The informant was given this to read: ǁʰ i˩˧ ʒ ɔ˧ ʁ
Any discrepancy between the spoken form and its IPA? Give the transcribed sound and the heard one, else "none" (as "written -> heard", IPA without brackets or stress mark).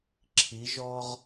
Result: none